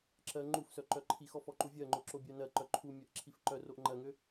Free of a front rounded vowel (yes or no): no